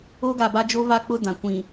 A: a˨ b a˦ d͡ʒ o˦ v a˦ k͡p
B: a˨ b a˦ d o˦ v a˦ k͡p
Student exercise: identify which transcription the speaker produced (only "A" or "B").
A